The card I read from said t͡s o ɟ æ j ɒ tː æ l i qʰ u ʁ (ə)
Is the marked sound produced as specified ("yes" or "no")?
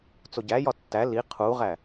no